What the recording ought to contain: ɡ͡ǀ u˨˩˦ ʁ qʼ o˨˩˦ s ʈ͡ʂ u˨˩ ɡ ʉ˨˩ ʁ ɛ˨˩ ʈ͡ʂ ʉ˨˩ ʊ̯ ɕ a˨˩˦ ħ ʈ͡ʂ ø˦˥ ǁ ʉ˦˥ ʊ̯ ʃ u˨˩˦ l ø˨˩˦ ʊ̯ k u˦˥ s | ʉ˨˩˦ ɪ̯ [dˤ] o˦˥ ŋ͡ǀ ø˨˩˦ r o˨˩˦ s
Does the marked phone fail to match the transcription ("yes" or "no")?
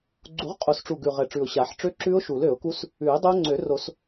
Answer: no